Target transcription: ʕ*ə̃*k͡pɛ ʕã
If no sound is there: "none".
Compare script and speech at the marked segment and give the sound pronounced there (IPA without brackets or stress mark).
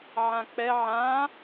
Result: ã